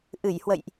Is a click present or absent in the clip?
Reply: absent